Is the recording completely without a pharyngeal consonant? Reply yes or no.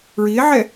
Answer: no